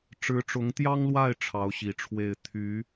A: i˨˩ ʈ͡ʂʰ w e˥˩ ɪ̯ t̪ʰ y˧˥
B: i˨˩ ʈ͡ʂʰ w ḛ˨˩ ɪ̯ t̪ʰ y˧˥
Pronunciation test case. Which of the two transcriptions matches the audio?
A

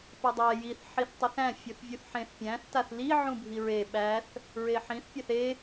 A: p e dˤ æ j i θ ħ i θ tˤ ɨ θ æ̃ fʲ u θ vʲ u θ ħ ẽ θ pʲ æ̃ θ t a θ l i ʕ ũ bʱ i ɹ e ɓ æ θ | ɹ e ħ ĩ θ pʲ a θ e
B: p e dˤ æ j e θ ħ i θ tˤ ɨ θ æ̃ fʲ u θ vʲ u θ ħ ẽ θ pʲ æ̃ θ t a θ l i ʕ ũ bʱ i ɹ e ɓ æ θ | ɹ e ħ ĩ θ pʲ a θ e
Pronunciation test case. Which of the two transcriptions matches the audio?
A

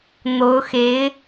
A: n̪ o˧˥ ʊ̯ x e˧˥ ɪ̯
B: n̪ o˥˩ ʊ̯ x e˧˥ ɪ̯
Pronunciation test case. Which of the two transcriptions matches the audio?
A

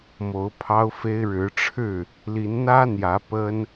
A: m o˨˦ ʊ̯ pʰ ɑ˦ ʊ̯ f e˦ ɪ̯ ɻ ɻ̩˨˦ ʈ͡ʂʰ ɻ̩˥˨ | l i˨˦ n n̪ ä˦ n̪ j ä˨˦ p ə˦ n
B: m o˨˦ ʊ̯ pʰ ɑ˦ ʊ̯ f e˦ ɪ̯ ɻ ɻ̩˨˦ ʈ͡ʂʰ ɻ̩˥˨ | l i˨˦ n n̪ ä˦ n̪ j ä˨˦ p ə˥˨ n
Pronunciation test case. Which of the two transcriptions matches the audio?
A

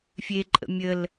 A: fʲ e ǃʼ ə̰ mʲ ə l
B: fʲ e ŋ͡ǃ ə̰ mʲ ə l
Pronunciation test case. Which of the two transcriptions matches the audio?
A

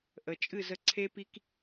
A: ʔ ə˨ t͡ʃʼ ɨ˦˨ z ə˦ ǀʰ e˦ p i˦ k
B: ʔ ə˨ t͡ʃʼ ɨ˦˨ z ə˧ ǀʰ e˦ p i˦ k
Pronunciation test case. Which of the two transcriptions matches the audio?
B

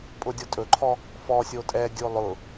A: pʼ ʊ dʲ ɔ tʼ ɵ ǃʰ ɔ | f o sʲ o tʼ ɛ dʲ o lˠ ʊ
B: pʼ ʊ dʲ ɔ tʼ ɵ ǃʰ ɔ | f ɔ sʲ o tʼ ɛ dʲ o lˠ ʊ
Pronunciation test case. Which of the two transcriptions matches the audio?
B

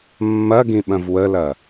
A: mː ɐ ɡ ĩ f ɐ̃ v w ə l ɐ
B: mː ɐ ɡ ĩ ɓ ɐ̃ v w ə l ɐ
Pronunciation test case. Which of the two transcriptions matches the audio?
B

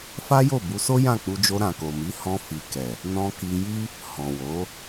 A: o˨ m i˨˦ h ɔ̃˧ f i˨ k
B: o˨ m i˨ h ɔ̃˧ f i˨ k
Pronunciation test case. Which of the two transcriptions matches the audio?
A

